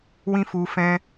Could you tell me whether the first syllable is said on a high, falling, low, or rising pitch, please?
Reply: high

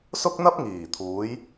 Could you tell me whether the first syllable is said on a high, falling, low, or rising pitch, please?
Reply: high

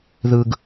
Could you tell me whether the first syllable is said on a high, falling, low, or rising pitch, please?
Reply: low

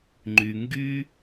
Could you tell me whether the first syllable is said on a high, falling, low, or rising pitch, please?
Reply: low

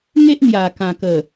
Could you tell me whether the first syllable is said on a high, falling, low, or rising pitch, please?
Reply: high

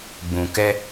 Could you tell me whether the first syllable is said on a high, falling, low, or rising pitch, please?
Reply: low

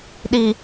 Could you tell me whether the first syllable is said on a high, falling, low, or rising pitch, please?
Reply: low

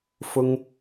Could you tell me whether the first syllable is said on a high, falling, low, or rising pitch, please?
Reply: high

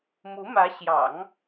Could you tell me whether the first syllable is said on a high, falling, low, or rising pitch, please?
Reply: rising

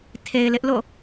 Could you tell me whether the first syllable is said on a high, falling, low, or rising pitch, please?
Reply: low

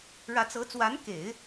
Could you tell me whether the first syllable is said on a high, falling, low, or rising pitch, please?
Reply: rising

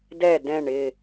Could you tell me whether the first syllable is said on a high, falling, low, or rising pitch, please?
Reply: falling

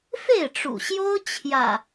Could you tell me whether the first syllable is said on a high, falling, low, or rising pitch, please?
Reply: falling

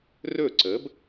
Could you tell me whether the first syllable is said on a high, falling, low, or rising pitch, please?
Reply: falling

